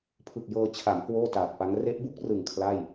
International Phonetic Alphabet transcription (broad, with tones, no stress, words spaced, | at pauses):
pʰɯ˨˩k̚jɤː˧ t͡ɕʰa˩˦m kwoː˥˩taː˨˩t̚pa˦˥ŋ re˦˥ʔbu˦˥k̚rɯ˨˩ŋ kʰla˥˩j